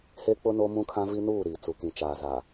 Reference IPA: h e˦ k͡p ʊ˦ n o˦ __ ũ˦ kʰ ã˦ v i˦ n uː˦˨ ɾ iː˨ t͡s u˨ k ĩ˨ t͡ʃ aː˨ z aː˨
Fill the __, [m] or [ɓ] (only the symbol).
m